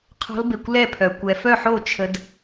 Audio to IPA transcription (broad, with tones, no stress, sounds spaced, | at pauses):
qʰ ɔ̤˦˥ l b e˧ kʷ l ɛ˥˧ pʰ œ˧ kʷ ɛ˧ f œ˥˧ ħ o˥˧ t͡ʃʰ ə˦˥ d